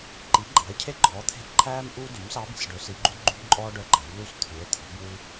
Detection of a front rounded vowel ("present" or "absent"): present